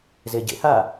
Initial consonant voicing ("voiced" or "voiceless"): voiced